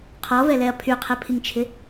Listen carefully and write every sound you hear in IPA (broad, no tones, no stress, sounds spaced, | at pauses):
qʰ ɔ v ɛ l ɛ ɐ̯ pʰ y qʰ ɛ pʰ i ŋ t͡ʃʰ ɪ